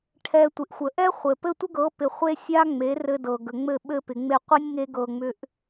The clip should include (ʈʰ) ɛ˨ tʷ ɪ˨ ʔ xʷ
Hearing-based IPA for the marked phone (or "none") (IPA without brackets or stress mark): ʈʰ